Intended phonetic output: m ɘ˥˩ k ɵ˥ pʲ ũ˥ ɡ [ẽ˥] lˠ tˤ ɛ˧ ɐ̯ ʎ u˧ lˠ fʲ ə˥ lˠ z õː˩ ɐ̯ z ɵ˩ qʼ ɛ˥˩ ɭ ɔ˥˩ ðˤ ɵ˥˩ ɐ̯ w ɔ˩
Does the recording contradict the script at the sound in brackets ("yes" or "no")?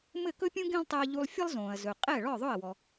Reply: no